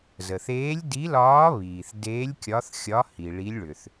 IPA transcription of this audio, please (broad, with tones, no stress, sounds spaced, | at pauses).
z ə˩ θ eː˧˥ lʲ d i˧˥ l ɒː˧˥ β iː˩ θ d eː˧˥ lʲ kʲ ɒ˧˥ θ xʲ ɒ˧˥ h i˩ ɭ i˧˥ lʲ ɭ ʏ˩ θ